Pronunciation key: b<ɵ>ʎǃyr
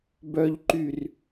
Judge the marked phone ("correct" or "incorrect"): incorrect